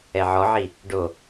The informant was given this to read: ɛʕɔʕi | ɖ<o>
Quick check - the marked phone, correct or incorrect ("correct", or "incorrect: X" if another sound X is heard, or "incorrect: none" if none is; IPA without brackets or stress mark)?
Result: correct